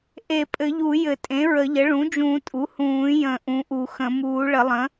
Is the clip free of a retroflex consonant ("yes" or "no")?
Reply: no